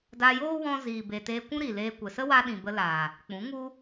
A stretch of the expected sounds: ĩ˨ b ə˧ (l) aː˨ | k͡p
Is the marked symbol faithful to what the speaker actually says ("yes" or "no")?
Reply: yes